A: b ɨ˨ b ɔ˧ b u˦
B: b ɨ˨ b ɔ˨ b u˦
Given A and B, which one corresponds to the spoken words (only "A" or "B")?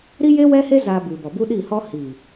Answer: B